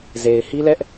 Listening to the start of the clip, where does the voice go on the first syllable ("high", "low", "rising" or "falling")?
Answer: low